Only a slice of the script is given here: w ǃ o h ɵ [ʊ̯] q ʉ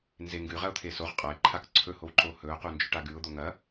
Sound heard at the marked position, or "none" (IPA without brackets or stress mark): ʊ̯